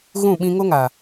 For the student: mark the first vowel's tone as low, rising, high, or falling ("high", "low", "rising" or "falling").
falling